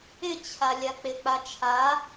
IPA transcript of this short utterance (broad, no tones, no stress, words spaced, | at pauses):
ɪt͡ɕʰa lʲak͡pɪk͡pa t͡ʃʰa